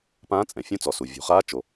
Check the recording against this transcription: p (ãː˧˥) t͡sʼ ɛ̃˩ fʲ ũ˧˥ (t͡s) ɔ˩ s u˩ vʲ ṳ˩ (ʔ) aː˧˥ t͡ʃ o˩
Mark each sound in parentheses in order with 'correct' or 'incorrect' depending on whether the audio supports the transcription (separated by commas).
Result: correct, correct, incorrect